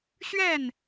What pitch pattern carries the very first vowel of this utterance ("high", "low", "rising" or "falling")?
falling